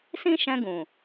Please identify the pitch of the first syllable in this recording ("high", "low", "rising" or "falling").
high